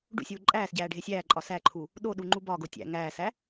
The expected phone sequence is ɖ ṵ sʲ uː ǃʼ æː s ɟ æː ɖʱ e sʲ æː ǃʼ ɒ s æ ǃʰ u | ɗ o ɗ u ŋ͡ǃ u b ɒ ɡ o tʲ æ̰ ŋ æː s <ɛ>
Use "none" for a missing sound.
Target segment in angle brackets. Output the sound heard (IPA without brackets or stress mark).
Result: æ